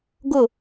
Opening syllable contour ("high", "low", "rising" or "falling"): falling